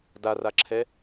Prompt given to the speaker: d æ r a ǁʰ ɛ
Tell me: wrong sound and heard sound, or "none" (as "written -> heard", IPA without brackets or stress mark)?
æ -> a